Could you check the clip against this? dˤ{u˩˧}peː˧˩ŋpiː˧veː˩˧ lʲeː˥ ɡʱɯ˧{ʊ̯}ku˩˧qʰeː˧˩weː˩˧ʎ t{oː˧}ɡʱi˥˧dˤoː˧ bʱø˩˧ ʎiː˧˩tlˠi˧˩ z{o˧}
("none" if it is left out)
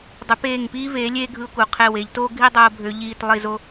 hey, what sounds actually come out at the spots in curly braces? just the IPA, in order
y˩˧, ʊ̯, oː˥, o˧

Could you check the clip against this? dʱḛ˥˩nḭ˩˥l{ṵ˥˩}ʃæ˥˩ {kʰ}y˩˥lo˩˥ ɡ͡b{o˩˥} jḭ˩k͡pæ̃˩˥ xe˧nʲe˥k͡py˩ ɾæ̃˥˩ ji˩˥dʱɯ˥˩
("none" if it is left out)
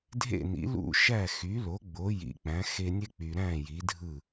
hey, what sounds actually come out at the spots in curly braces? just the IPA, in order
ṵ˥˩, x, o˩˥

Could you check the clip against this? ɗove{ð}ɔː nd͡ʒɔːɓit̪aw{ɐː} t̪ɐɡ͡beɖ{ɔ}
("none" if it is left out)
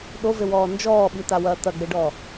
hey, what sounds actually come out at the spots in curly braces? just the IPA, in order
w, ɐː, ɔ

